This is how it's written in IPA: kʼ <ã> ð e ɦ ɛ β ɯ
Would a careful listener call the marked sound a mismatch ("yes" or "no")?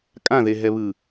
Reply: no